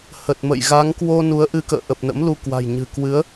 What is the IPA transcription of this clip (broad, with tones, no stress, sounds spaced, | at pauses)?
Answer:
h ə˨˩ t̚ m ə̰˧˨ j ɣ a˨˦ ŋ k w o˧ n u˨˦ ə̯ ʔ ɨ˧ k ə̰ː˧˨ ʔ ə˨˩ p̚ n ə̰˧˥ m l u˧ k w a̤˨˩ j ɲ ɨ̤˨˩ k w ɨ˨˦ ə̯